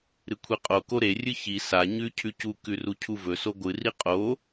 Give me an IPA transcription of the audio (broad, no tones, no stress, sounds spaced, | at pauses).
ɾ ɨ kʷʰ i qʼ o k o ɾ e rʲ ɨ ç i s a ɲ ʉ cʰ ʉ c u k ʉ r u cʰ u v ɵ s o ɡʷ ɨ r i qʼ o